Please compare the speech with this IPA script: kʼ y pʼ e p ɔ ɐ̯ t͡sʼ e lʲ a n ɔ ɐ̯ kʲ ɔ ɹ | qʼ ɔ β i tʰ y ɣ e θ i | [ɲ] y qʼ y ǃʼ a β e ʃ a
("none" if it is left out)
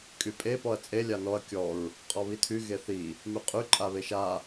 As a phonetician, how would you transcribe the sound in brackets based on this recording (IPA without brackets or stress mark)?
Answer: m